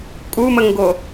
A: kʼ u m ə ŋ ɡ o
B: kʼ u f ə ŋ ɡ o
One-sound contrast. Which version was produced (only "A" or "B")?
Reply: A